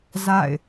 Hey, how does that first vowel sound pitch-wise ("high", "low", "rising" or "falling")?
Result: falling